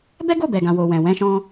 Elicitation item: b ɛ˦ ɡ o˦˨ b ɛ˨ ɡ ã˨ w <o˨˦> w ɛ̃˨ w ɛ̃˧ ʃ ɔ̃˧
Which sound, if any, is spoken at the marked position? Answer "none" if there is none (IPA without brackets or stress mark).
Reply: o˨